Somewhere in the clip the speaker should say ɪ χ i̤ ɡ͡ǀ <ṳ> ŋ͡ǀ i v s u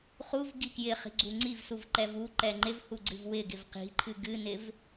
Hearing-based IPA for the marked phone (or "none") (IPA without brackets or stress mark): u